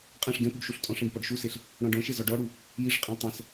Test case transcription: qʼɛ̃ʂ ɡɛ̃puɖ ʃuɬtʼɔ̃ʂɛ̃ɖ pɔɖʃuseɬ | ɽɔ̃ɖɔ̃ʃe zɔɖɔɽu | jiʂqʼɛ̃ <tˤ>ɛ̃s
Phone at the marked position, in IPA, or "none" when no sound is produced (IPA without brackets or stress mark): tˤ